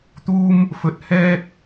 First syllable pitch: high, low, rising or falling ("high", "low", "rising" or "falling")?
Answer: high